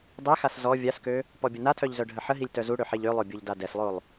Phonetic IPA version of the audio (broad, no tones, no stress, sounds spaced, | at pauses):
dˤ e x a s z ɔ vʲ a s k ø | p ɔ bʲ ə n a tʰ œ ʎ z œ ɖʱ ə ħ ə ɦ i lʲ t œ z u ɽ ø ħ e ʎ ø lˠ o bʲ o ʎ d a d ɛ s lˠ o lˠ